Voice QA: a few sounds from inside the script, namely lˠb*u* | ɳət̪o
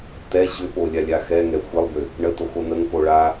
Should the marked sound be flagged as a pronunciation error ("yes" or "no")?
yes